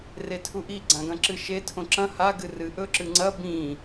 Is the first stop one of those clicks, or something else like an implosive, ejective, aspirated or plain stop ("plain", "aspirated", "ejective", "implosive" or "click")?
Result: aspirated